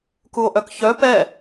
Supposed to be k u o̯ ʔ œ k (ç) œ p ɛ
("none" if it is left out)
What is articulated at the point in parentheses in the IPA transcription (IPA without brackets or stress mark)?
ç